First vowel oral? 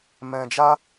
no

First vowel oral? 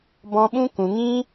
no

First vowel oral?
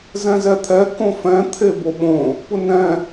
no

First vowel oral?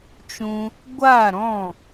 no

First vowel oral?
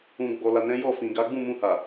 no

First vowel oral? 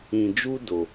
no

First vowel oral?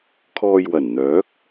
yes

